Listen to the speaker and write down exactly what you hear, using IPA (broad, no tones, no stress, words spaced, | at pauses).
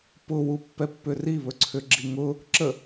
pʊwupːɛpːʏ riβɵǀʰʏɡ͡ǁi ŋʊ | ǁə